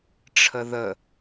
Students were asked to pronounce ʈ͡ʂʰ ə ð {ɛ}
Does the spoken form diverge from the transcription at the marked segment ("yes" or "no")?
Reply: yes